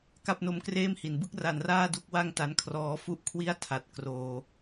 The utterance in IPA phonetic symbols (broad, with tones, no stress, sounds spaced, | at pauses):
k a˥˩ p̚ n o˦˥ m k r eː˥˩ m h i˩˦ n b ɯ˥˩ k̚ r a˩˦ n r aː˥˩ d u˥˩ k̚ w a˥˩ ŋ t a˦˥ n kʰ r ɔː˦˥ f u˥˩ ʔ kʰ w i˥˩ a̯ tʰ a˨˩ t̚ k r oː˧